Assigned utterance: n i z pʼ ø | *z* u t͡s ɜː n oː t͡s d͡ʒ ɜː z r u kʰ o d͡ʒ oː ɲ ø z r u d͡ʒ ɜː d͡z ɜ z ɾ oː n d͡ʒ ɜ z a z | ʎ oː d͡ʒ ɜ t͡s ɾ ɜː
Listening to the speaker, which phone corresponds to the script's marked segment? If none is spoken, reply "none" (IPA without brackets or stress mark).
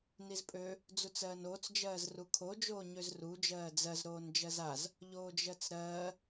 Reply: d͡z